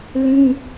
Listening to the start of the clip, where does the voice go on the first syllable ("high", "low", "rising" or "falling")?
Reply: high